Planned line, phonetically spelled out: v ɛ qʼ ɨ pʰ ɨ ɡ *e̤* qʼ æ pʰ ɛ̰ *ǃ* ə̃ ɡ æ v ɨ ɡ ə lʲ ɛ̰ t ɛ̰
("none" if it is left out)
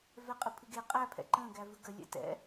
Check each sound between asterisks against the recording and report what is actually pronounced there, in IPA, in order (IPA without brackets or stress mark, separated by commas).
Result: e, ǃ